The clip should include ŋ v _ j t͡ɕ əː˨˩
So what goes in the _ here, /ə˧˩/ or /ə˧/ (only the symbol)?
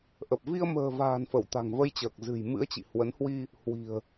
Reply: ə˧